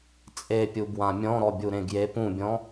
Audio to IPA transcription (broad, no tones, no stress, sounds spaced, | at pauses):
t͡sʼ e pʲ u b w ã mʲ ɔ̃ ɾ ɔ bʲ u ɾ ẽ ɡ j e p ũ bʲ ɔ̃